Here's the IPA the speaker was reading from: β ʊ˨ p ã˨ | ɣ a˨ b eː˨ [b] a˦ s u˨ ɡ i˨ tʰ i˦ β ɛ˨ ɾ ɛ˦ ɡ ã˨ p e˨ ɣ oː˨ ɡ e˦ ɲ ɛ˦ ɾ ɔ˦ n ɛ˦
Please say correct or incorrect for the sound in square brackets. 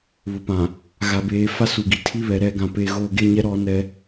incorrect: f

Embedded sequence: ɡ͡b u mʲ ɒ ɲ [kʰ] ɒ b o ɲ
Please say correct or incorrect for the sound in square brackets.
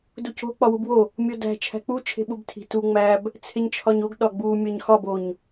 incorrect: x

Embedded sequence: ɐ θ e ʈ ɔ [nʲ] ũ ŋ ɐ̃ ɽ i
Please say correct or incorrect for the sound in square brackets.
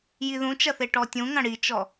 incorrect: tʲ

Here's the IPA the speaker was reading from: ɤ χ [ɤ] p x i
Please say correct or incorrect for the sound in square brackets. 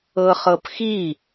correct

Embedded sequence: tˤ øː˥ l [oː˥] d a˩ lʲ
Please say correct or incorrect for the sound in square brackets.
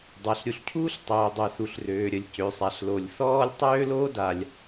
correct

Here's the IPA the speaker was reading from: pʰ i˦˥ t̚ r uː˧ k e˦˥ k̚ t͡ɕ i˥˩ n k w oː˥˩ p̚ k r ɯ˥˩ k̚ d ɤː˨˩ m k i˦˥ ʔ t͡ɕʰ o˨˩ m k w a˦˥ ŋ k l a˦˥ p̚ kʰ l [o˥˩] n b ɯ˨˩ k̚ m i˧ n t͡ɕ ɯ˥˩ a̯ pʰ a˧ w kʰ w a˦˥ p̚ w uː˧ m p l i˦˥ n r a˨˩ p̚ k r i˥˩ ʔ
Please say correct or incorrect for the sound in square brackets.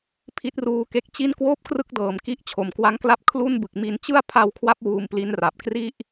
incorrect: u˥˩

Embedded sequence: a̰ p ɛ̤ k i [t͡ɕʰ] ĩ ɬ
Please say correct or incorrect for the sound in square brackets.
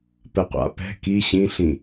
incorrect: ɕ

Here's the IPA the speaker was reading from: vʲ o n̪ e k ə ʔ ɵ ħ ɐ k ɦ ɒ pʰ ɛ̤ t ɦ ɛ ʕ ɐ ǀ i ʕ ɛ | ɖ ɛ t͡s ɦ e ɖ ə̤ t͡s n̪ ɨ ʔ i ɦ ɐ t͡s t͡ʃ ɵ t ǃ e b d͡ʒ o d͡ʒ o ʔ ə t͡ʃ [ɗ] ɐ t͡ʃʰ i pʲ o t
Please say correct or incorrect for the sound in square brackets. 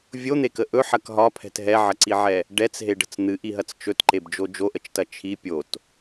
incorrect: t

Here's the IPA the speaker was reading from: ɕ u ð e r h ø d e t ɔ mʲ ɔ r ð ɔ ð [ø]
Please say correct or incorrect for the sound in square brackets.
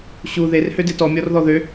correct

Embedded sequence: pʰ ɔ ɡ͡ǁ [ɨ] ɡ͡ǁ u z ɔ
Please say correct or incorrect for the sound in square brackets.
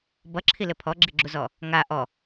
incorrect: i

